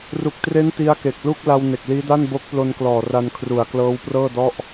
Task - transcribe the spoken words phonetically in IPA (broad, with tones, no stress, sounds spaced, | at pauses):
r u˨˩ k̚ t r e˦˥ n t i˦˥ a̯ k e˨˩ k̚ l u˥˩ k̚ l a˧ w n e˨˩ k̚ l iː˦˥ d a˥˩ n b o˦˥ k̚ p l o˧ n k l ɔː˨˩ r a˧ n kʰ r u˨˩ a̯ k l ɤː˦˥ w p r ɤː˥˩ d ɔ˥˩ ʔ